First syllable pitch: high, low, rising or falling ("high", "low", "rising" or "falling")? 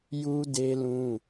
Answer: high